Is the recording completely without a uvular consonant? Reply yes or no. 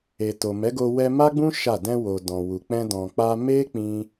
yes